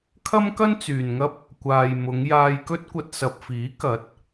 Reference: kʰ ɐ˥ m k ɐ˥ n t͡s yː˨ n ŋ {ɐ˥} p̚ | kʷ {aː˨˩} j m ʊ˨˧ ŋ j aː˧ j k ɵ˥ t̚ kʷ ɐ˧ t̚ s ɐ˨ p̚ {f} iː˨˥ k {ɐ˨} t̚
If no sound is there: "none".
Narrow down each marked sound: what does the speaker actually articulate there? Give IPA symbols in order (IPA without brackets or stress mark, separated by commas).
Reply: ɐ˥, aː˨, f, ɐ˨˥